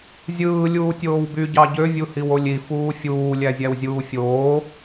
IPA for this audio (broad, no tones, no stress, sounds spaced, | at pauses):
zʲ ɯː lʲ uː tʲ oː w b y ɟ ɑ ɟ ø vʲ u h i w o lʲ i f uː fʲ uː lʲ æ zʲ æ w zʲ uː fʲ oː